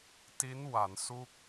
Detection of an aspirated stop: absent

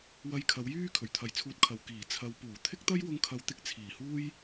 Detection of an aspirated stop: present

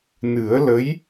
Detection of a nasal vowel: absent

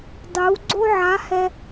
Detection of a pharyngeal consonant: present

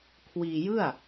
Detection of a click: absent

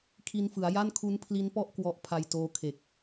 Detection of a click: absent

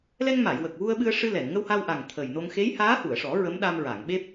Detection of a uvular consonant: absent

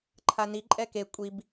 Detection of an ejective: present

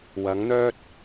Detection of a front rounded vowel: present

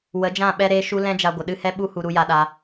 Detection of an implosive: present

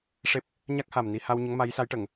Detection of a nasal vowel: absent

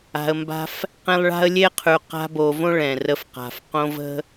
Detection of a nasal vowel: present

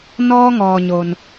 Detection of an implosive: absent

